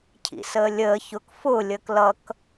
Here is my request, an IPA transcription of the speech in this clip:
cʰ ḭ s əː lʲ əː ç ʊ k f ʊ lʲ əː k l ʌ k

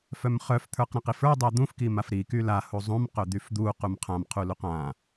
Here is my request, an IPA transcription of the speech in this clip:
f œ m χ œ f t̪ʰ ə˞ q ɾ ã q i f ə˞ dˤ ɛ d̪ ũ f k i m a f ɾ i k y l a h u zˤ ũ m q œ d̪ y f d̪ u q u m qʰ ã m qʰ u l u q ã

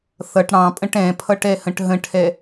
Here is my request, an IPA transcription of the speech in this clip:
θ ʌ ʈ ɽ ɑ̃ pʼ ə̃ ʈ ɛ̃ pʰ ʌ ʈ ɛ h ə̃ ʈ ɦ ə̃ ʈʰ ɛ

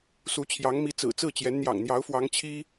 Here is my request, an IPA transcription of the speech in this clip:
s u˧˥ t͡ɕʰ j ɑ˧˥ ŋ m i˧˥ t͡s ɹ̩˨˩ t͡s ɹ̩˥˩ t͡ɕ j ɛ˧˥ n n̪ j ɑ̰˨˩ ŋ n̪ j ɑ˧˥ ʊ̯ f w ɑ˧˥ ŋ t͡ɕʰ i˥

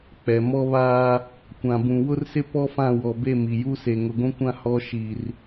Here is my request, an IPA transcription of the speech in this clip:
k͡p ɛ˨ m ɔ˦ β aː˦ | kʷ ã˨ b ũ˨ w ʊ˦ r s ɪ˦ p ɔ˦ f ã˦˨ w ɔ˨ b e˦˨ m i˨ j u˦ s e˨ ŋ ʊ˨ ɡʷ ũ˦ kʷ ã˦ h ɔ˦ ʃ i˨ r

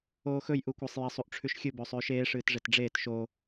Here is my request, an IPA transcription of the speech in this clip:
oː x ɵ j ʔ u kʷ a sˤ j e sˤ u ʔ ʈ͡ʂʰ ʉ ʃ xʲ ɨ b ɵː sˤ ʉː ʃ eː ʂ ɨː t ʐ e t ɖ͡ʐ eː t ʃ o

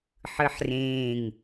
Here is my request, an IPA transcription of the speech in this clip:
ħ ɯ ħ r ẽː ŋ

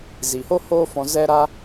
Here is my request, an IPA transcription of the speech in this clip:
z i˨ h o˦ h oː˦ f ɔ̃˧ z ɛ˦ ɾ a˦

